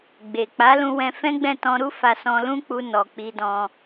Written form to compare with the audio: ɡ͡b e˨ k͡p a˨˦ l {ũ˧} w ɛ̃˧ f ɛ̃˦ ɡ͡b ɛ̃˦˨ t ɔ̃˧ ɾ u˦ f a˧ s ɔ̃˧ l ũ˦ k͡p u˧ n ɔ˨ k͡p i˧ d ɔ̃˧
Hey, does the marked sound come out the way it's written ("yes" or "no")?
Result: yes